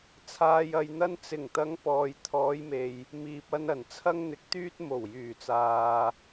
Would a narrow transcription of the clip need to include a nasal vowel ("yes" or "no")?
no